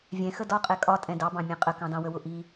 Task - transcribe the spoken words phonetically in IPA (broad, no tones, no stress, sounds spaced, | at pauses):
vʲ ɛ̃ x ə d ɒ qʼ ɛ kʼ ɒ tʼ ɛ̃ d ɑ b ɑ̃ mʲ ɛ̃ qʼ ə k ɑ̃ d ɑ̃ w ə w ʊ ʔ i